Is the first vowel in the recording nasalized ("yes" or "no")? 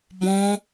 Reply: yes